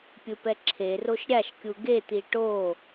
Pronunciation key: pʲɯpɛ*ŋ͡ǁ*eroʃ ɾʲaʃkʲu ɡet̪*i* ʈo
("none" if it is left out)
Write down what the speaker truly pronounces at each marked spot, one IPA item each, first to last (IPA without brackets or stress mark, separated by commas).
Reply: ǁʰ, i